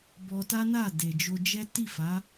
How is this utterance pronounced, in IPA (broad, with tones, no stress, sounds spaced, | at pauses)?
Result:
b ɔ˧ t a˦ n a˦˨ d e˨ d͡ʒ o˧ d͡ʒ ɛ˦ t i˦˨ f a˨˦